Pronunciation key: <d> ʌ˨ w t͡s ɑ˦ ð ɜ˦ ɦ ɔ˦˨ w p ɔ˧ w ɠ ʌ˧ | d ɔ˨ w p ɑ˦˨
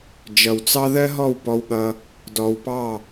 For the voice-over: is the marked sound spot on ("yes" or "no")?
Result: no